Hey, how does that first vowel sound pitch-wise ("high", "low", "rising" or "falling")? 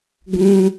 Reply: low